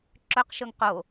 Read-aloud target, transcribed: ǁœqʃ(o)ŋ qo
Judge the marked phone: incorrect: ɵ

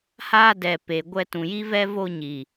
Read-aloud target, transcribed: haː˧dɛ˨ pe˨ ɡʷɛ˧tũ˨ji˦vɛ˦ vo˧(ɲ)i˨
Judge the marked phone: correct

